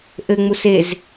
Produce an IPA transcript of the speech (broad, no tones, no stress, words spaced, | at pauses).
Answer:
ʔɘŋ͡mus ez